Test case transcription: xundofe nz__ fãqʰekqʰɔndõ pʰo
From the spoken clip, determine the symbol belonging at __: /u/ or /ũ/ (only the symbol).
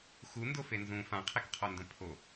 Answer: ũ